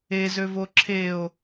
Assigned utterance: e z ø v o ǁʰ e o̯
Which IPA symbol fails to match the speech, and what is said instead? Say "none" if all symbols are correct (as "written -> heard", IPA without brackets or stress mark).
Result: none